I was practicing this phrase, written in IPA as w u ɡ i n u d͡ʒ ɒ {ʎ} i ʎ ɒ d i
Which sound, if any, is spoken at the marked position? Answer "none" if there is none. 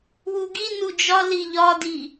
l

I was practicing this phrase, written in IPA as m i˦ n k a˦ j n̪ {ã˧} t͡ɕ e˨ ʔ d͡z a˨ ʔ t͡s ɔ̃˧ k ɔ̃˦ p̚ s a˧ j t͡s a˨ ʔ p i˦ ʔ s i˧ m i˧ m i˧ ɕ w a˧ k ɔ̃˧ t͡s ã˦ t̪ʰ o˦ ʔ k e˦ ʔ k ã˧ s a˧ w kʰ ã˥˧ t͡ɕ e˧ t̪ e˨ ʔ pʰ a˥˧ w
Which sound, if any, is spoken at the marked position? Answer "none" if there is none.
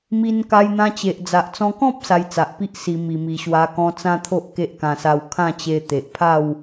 ã˧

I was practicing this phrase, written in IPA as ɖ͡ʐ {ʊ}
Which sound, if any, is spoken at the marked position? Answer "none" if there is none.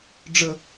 ə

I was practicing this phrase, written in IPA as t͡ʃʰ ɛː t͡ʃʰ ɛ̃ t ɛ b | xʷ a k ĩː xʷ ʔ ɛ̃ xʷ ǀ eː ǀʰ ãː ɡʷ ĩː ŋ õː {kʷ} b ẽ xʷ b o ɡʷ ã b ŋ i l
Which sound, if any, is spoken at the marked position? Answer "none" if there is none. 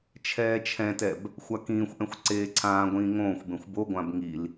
xʷ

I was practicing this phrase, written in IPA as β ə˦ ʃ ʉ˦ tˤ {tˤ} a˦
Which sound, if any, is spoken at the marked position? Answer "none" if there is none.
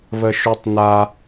n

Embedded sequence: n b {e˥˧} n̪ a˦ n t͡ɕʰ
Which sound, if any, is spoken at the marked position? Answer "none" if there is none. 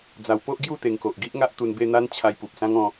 e˥˧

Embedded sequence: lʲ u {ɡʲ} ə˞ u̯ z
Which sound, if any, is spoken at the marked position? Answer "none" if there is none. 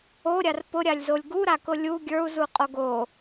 ɡʲ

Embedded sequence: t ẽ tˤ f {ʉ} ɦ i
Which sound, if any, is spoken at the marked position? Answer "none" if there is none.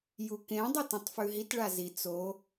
ʉ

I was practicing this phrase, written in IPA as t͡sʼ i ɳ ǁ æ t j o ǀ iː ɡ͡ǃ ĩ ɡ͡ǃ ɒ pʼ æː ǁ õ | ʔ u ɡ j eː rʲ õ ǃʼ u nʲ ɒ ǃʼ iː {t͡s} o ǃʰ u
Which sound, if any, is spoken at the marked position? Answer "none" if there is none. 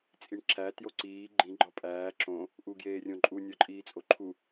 t͡sʼ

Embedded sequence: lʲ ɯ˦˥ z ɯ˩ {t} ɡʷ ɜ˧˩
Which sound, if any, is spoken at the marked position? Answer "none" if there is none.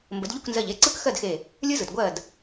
t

